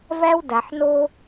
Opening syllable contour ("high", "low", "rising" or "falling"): high